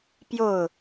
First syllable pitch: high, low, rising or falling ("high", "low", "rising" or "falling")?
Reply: falling